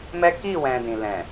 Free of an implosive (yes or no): yes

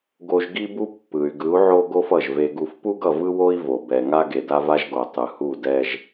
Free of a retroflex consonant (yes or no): yes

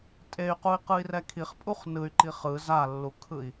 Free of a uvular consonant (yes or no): no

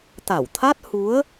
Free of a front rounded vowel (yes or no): yes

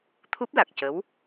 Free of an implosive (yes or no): yes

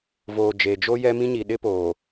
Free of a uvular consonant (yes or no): yes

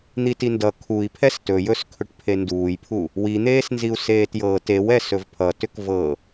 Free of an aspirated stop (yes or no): no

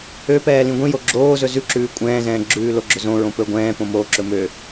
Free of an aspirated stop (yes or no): yes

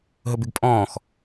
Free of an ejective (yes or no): no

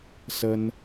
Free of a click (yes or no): yes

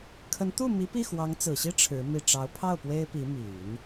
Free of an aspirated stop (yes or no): no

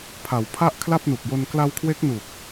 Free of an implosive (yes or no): yes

